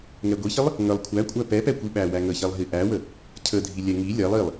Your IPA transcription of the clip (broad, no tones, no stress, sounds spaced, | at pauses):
ŋ ɛ ɡʷ i ç ə lˠ | ŋ ə lˠ kʷʰ æ kʷʼ æ p ɛ p ɛ kʷ i ɓ æ w æ ŋ ə ç ɛ lˠ ɦ i ʔ æ w ə | cʰ ə dʱ i lʲ ɛ ŋ i lʲ ɛ lˠ i lˠ